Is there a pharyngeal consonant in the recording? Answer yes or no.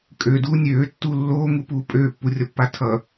no